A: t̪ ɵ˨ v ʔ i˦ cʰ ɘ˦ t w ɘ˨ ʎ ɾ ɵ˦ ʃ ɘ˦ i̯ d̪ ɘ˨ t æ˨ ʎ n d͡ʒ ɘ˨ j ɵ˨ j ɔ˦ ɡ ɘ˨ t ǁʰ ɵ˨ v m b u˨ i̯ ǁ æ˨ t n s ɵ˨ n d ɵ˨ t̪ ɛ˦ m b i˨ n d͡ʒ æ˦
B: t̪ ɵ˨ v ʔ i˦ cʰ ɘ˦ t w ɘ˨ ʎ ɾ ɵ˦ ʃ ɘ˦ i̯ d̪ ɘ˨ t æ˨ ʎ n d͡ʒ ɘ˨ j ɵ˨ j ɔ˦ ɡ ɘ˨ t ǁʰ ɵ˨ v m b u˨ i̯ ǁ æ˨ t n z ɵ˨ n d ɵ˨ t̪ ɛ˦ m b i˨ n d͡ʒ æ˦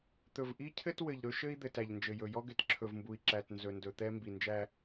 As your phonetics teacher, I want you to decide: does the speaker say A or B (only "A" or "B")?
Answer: B